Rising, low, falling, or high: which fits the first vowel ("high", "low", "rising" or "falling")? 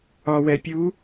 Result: low